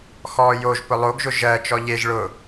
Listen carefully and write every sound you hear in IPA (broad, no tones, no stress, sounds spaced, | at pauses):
x ɔː j o ʒ p ʊ lˠ o ɡ ʒ ʊ ʒ ɜ t͡ʃ ɔ ʎ e ʒ ɭ ʊ